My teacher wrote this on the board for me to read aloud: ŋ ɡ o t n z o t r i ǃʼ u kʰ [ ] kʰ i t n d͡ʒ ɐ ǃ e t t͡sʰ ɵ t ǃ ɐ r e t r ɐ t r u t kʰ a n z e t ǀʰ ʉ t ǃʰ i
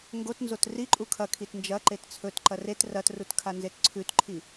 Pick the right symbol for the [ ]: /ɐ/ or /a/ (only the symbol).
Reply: ɐ